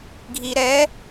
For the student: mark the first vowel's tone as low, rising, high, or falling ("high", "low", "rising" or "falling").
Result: low